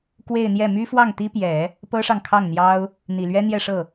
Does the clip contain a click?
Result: no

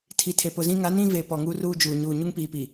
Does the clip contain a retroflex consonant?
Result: no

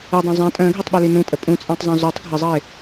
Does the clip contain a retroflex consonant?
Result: no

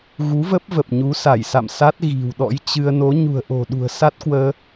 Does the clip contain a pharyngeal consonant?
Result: no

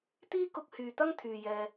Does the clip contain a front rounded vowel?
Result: yes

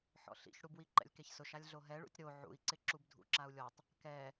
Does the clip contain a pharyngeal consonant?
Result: yes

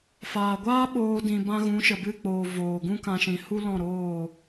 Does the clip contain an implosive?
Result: yes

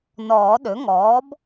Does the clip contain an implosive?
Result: yes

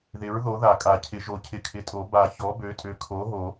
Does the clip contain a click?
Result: no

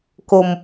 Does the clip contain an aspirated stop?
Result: no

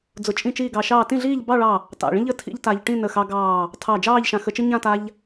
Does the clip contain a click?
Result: no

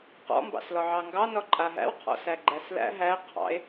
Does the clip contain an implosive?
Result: no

